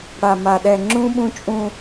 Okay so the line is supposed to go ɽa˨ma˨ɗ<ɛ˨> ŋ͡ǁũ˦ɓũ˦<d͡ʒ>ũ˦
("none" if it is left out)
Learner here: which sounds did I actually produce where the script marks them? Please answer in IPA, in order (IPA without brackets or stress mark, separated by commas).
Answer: ɛ˨, t͡ʃʼ